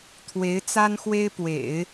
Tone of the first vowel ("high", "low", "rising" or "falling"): rising